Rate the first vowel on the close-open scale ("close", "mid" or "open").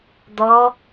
mid